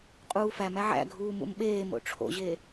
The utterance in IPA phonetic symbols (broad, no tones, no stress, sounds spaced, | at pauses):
qʼ uː f æ m æ ʕ æ̰ ɡʱ uː m ṵ m ɓ eː m o̰ ʈ͡ʂʰ o̰ ʑ e